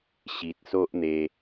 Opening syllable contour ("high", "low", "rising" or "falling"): low